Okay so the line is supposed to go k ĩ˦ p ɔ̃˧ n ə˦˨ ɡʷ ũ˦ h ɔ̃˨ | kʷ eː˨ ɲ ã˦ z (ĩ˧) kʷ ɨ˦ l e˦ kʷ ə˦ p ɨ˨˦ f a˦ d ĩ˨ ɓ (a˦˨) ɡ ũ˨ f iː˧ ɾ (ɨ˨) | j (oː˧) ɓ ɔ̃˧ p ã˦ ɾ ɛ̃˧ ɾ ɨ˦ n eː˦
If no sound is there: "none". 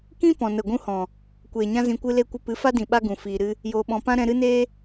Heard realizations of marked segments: ĩ˧, a˦, ɨ˦, oː˧

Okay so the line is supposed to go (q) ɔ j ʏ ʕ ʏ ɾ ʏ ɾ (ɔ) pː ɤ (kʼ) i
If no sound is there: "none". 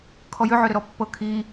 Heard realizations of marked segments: kʰ, ɔ, kʰ

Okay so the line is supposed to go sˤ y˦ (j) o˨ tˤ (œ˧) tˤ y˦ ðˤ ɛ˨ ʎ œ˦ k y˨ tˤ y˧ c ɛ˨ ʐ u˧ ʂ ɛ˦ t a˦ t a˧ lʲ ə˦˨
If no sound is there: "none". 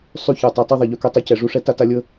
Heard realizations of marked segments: ç, œ˨

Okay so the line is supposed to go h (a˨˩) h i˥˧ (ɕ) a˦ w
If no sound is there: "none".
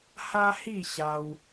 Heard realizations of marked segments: a˦, ɕ

